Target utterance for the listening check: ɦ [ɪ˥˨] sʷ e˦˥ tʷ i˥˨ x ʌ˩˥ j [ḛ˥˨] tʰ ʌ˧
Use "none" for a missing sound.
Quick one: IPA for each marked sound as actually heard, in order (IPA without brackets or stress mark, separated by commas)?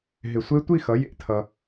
ɪ˧˩, ḛ˥˨